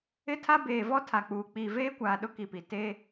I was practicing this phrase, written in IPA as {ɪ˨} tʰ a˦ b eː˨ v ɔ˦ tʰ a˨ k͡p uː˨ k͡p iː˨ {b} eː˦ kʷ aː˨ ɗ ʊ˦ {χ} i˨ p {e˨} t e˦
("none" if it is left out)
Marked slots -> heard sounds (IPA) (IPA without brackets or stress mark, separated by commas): ɪ˦, v, k, i˨